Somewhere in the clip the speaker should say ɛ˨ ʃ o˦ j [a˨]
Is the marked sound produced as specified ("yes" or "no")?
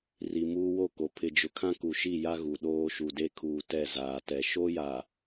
yes